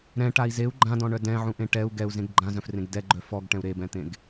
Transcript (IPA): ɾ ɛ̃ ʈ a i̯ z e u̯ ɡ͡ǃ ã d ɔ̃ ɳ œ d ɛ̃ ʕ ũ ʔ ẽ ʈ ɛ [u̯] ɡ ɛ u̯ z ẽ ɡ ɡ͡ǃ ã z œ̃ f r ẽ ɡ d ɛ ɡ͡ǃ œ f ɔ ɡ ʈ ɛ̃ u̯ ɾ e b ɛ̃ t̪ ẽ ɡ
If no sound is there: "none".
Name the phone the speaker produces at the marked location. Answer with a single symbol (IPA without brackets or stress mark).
u̯